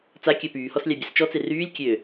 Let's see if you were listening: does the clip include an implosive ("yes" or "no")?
no